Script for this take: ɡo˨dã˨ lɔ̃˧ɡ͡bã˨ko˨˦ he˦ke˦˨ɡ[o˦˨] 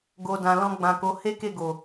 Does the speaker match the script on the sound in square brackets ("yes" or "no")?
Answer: no